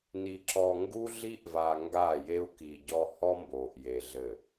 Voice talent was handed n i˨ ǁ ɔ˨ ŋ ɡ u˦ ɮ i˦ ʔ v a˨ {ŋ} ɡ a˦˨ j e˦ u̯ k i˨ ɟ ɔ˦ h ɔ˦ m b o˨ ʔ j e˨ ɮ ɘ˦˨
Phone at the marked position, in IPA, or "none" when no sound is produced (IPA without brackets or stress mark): ŋ